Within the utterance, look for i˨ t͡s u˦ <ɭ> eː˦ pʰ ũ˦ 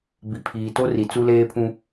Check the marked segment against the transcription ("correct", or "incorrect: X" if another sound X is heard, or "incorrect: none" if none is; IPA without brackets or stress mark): incorrect: l